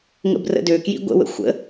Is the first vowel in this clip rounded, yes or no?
no